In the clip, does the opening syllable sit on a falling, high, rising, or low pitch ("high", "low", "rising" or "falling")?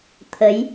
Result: rising